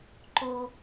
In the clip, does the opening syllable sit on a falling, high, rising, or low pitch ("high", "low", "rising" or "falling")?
low